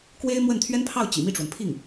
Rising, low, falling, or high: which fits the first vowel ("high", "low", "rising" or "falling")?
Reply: high